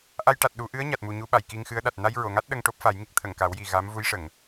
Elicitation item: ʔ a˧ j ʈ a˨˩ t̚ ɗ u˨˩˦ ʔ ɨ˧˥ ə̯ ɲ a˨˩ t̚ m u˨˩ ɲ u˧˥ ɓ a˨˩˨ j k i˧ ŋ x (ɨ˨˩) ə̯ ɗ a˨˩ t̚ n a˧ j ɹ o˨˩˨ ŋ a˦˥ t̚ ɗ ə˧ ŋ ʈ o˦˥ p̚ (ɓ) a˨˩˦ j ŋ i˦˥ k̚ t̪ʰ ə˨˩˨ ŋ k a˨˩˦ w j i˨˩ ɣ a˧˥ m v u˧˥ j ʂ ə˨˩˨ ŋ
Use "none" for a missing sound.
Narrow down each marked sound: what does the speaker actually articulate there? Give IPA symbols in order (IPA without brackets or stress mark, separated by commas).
ɨ˧˥, f